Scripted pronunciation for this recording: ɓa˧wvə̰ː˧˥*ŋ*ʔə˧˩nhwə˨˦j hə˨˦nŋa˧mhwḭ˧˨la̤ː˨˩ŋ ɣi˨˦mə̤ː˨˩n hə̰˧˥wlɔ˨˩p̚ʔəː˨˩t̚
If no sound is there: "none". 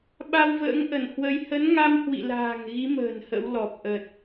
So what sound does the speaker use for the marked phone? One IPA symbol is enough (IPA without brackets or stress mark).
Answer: ŋ